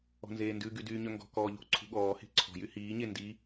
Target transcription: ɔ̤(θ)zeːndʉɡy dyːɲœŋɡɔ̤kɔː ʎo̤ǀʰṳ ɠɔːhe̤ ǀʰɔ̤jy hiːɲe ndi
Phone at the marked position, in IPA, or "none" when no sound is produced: n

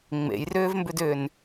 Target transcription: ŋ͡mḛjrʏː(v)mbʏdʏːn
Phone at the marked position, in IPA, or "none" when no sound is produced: v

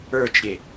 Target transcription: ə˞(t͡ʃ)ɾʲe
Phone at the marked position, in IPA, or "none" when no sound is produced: t͡ʃ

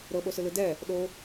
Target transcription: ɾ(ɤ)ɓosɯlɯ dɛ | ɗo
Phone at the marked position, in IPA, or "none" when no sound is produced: ɤ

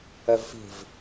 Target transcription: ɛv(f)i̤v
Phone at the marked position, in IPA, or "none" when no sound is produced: f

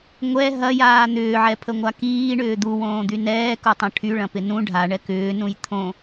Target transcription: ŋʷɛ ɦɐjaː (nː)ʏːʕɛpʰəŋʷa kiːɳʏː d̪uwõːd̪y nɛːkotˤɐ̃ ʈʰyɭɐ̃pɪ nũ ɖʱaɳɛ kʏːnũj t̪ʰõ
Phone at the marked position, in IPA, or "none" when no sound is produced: n̪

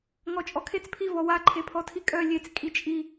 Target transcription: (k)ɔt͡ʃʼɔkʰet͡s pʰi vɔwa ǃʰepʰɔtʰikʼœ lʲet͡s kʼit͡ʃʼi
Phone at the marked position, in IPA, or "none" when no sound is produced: ŋ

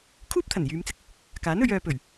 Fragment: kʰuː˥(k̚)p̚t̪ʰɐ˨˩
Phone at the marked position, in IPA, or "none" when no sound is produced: none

